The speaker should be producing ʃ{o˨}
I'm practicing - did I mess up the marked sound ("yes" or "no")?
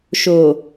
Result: yes